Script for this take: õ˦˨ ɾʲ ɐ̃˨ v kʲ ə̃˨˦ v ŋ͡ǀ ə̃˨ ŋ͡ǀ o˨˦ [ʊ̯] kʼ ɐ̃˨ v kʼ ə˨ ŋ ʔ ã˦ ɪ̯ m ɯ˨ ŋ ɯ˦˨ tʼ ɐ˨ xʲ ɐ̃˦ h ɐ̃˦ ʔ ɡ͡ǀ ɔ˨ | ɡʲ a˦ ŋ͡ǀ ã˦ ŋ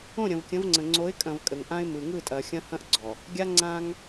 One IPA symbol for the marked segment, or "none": ɪ̯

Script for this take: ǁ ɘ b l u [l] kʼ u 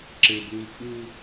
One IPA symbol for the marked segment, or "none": l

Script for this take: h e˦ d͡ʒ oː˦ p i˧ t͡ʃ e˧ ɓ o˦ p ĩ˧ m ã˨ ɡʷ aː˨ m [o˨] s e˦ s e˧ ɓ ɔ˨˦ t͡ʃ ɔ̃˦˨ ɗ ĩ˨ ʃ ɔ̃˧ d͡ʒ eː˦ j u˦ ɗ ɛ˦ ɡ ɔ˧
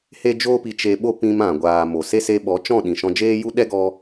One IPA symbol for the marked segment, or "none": o˨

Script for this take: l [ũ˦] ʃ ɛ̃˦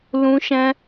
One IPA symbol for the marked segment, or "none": ũ˦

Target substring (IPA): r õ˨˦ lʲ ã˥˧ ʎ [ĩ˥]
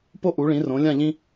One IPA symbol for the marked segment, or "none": ĩ˥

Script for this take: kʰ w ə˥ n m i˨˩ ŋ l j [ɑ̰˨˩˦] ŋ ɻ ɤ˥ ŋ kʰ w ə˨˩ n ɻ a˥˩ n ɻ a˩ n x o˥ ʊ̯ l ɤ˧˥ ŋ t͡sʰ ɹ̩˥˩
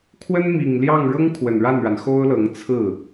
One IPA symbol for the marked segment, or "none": ɑ˥˩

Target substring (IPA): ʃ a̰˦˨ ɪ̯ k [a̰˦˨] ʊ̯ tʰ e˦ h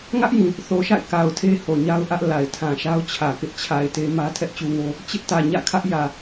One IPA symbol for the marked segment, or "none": a˨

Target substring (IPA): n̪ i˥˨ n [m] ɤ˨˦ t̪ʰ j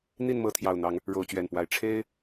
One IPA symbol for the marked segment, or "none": m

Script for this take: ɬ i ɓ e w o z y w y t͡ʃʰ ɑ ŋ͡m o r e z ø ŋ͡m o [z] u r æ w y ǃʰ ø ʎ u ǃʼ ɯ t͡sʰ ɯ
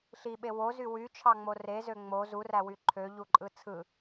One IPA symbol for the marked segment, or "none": z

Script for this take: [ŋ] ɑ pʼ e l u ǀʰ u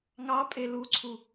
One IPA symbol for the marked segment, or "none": ŋ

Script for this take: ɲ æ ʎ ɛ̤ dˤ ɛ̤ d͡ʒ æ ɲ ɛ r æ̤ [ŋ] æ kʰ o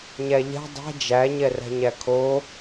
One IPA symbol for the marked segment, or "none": ɲ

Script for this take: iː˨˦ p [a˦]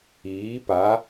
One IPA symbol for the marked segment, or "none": a˨˦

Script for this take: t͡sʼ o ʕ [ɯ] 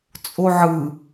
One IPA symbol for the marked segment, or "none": ɯ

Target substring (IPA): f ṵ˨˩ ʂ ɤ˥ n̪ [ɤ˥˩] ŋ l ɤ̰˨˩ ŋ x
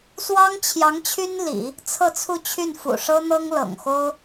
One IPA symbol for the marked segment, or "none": ɤ˥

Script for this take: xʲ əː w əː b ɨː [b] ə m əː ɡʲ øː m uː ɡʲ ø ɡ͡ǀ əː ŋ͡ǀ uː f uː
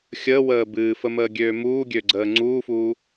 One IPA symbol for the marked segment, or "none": f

